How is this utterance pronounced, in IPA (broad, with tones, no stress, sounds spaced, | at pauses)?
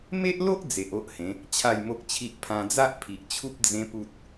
m e˦ ʔ l o˦ ʔ d͡z e˨ ʔ o˦ ʔ h ẽ˨˦ | t͡ɕʰ a˥˧ j m o˦ k̚ t͡ɕʰ i˦ ʔ pʰ ã˧ d͡z a˦ ʔ pʰ i˨ ʔ t͡ɕʰ u˦ p̚ d͡z ẽ˦ p u˦ t̚